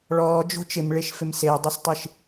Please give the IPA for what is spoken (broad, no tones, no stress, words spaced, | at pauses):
ɭɔːd͡ʒo̤ t͡ʃɪmɭeʃfɪm sedˤɪstˤiʃ